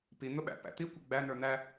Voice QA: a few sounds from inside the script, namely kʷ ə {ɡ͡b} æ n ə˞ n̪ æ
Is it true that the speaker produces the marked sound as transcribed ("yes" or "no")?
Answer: yes